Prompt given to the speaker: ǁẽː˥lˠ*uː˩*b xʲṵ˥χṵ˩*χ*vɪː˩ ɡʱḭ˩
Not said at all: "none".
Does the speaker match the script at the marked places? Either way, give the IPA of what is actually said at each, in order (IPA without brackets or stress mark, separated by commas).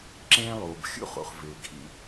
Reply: uː˩, χ